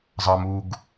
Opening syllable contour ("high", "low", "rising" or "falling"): low